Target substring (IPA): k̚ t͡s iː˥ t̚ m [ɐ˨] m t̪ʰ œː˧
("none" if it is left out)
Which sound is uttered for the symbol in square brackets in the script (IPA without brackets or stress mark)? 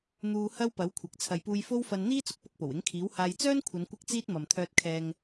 ɐ˨